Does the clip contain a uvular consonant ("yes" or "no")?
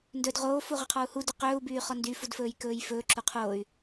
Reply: yes